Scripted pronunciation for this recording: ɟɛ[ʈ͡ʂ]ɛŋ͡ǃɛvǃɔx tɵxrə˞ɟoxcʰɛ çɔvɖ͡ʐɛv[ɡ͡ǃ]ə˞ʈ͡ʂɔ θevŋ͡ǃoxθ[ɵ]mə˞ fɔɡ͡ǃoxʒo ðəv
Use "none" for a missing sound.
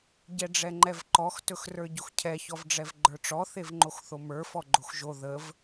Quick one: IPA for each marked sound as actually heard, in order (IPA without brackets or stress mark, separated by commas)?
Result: ɖ͡ʐ, ɡ͡ǃ, o